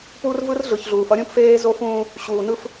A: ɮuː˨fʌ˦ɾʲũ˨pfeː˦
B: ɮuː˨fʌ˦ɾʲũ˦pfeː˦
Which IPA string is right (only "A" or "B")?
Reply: B